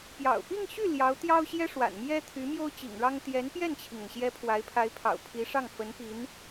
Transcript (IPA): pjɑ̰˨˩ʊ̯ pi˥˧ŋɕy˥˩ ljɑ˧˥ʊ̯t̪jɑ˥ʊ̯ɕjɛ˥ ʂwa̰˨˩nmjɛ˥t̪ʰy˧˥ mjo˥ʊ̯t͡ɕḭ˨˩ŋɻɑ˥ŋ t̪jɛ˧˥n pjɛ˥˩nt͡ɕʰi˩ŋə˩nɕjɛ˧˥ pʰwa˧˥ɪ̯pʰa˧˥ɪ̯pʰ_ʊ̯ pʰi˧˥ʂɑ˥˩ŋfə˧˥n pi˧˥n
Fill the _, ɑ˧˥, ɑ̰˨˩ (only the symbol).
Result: ɑ̰˨˩